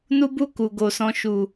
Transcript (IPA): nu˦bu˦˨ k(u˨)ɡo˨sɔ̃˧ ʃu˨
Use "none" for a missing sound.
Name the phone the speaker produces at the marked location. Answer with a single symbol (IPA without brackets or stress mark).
u˨